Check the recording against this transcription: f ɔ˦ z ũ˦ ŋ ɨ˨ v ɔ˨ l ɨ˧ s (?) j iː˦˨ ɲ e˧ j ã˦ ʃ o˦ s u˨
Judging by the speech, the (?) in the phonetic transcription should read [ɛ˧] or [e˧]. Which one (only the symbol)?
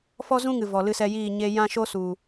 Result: ɛ˧